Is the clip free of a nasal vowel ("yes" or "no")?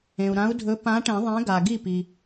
no